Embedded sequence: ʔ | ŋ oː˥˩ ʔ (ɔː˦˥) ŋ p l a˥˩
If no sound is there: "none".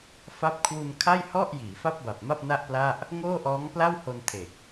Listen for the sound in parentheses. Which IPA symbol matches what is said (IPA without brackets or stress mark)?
ɔː˦˥